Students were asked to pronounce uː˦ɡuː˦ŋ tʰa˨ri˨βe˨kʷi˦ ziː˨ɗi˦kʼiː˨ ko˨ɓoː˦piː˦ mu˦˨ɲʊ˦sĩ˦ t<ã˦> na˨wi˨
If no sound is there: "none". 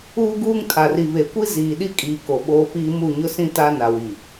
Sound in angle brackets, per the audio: a˦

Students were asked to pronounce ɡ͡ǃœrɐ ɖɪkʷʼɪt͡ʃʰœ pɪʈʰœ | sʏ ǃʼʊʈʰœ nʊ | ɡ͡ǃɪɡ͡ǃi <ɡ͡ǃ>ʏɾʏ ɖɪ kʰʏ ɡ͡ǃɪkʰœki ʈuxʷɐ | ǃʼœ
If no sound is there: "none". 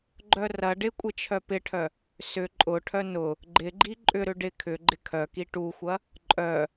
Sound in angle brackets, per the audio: ǃʼ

